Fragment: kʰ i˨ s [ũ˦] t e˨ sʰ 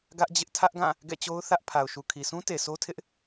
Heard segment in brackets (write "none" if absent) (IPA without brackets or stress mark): ũ˦